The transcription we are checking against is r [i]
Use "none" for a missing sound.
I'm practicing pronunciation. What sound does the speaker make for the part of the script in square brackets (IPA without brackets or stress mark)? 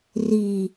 i